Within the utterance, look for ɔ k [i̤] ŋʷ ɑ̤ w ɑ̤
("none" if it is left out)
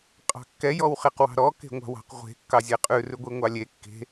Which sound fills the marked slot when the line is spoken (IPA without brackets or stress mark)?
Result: e̤